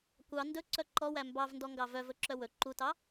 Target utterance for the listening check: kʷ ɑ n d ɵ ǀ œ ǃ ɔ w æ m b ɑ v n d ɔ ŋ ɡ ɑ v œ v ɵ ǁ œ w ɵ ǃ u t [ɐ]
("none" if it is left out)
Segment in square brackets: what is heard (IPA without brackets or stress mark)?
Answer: ɑ